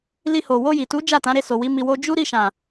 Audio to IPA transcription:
l i˧ h o˨ w o˧ j i˨ t u˨˦ d͡ʒ a˦˨ t ã˨˦ ɾ e˦˨ s o˨ w i˨˦ m i˧ w o˦ d͡ʒ u˦ ɾ i˦˨ ʃ ã˨

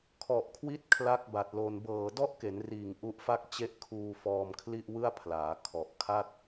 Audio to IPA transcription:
kʰ ɔ˨˩ ʔ kʰ w i˦˥ t̚ kʰ l a˦˥ k̚ b a˨˩ t̚ l o˧ n b ɤː˨˩ d ɔ˦˥ ʔ k e˩˦ n r iː˨˩ ŋ ʔ u˦˥ ʔ f a˥˩ k̚ t͡ɕ e˥˩ ʔ kʰ uː˧ f ɔː˧ m kʰ l i˥˩ ʔ w ɯ˥˩ a̯ pʰ l aː˩˦ kʰ ɔ˨˩ ʔ kʰ a˥˩ t̚

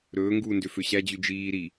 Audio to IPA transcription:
ɾ ɵː ŋ ɡ uː n d ø f ø ɕ æ d͡ʑ ʉ d͡ʒ iː ɾ i

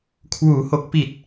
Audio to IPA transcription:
kʰ w uː˩˦ h o˨˩ k̚ p i˨˩ t̚

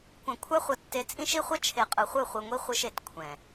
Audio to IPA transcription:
kʷ ã˨ kʷʰ a˦ χʷ ʌ˨ tː e˨ t͡sʼ ĩ˦ ʃ i˦ χʷ ʌ˦ t͡ʃʰ e˨ qʼ ɯ˨ χʷ ɯ˦˨ χʷ ɯ˨ ŋʷ i˦ χʷ ɯ˦ ʃ e˨ t kʷʰ ɛ̃˨

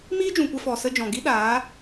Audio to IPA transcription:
m iː˦ d͡ʒ ũ˨ kʷ ɛ˧ f ɔ˨ s ə˧ d͡ʒ ɔ̃˨ ɡ i˦ ɗ aː˨˦

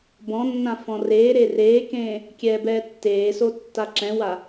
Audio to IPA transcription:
b ɔ̃ nː ã f ɔ̃ r eː ɾ e r eː k ẽː | kʲ ɛː b ɛː tː eː s o tː a ǁ ɛ̃ w a

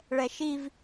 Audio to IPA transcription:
ɭ ɛ ʃ i v

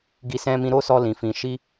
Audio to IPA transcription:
ɡ i˧ s ɛ̃˧ m ĩ˧ ɾ o˦ s ɔ˧ l ĩ˨ f ĩ˨ ʃ i˧

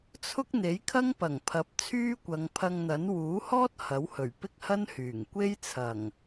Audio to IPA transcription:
t͡sʰ ʊ˥ k̚ n̪ e˨˥ j kʰ ɐ˥ ŋ p ɐ˨˩ ŋ pʰ ɐ˨˥ p̚ t͡sʰ yː˥ kʷ ɐ˨˧ ŋ pʰ ɐ˧ ŋ n̪ ɐ˨˥ n w uː˨˥ h ɔː˥ t̚ h ɐ˨˥ w h ɵ˨˩ ɥ p ɪ˥ k̚ h ɐ˥ n h yː˨˩ ŋ kʷ e˥ j t͡sʰ ɐ˨˩ ŋ

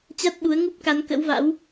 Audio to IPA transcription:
t͡ɕ a˦˥ t̚ ɓ u˨˦ ə̯ ŋ u˦˥ p̚ k a˨˦ n k ə̰˧˥ w v a̰˧˥ w

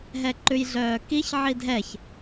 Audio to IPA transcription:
ɦ ɛ ǃ ʉ j ɮ œː k i ç ʕ i dʱ ɛ ç

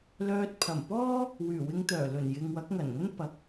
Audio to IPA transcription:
l œː˧ t̚ pʰ ɐ˨˩ m p ɔː˥ | w yː˨˩ w ɪ˧ ŋ t̪ œː˨˩ l ɵ˨˩ n j ɪ˨ ŋ w ɐ˨˥ k̚ ŋ ɐ˨˩ n ŋ ɐ˥ n p ɐ˨˥ k̚

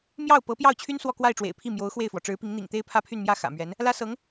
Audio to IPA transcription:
m j ɑ˥˩ ʊ̯ p ɤ˧˥ p j ɑ˥˩ ʊ̯ t͡ɕʰ y˥ n s w ɔ˥˧ k w a˥˩ ɪ̯ ʈ͡ʂ w ḛ˨˩ ɪ̯ pʰ i˥˩ m j o˧˥ ʊ̯ x w e˥˩ ɪ̯ f w ɔ˩ ʈ͡ʂ ɻ̩˧˥ p i˧˥ ŋ n̪ ḭ˨˩ ŋ t̪ e˥ ɪ̯ pʰ ä˥ pʰ y˥˧ n m j ä˥˩ x ä̰˨˩ m ɥ ɛ˧˥ n | l ä˥ s ɤ˧˥ ŋ

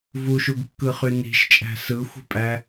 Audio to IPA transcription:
v u ʃ u ɡ kː ɯ χ y n i̤ ʃ t͡ʃʼ æ̤ s ɯ xʷ i̤ pʼ æ

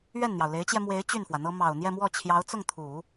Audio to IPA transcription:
ɥ ɛ˥˩ n n̪ j ɑ˩ ʊ̯ l e˧˥ ɪ̯ t͡ɕ j ɛ˧ m w e˧˥ ɪ̯ t͡ɕ y˥˩ n f w ä˩ n̪ ɤ˥ m ɑ˨˩ ʊ̯ n̪ j ɛ˥˧ m w ɔ˥˩ t͡ɕʰ j ɑ˧˥ ʊ̯ t͡s ʊ˥˩ ŋ t̪ʰ u˨˩˦

